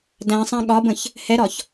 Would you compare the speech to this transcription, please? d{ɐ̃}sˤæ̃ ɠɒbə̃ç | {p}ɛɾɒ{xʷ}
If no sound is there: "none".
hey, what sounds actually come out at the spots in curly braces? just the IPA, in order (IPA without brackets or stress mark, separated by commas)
æ̃, h, ç